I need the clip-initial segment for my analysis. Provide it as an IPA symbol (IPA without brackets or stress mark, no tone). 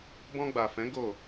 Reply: b